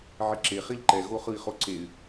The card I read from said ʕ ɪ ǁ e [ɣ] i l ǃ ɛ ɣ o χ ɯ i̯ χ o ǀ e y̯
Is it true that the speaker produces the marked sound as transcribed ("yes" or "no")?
no